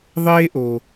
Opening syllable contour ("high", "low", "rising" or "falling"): high